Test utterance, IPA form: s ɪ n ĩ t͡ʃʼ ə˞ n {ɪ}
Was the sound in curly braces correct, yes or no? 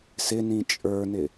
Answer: yes